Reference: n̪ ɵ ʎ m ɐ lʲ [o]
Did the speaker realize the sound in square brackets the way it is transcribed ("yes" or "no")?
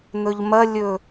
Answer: no